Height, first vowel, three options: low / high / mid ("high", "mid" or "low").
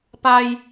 low